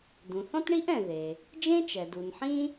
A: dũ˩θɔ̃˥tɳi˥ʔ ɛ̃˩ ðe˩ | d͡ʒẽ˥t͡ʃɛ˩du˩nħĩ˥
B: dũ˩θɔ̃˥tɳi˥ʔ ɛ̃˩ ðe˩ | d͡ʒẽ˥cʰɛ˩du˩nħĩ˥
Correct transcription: A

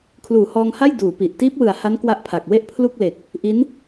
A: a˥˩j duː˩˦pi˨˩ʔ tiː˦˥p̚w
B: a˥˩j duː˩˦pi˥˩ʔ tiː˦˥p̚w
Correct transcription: A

